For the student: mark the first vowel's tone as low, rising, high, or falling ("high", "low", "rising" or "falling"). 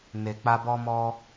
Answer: low